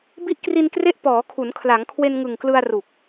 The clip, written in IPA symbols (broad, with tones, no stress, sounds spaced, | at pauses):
b i˦˥ ʔ k r i˧ n k r e˦˥ ʔ p ɔː˩˦ kʰ u˩˦ n kʰ l a˩˦ ŋ kʰ w e˧ n ŋ ɯ˨˩ ŋ k l ɯ˧ a̯ r u˨˩ k̚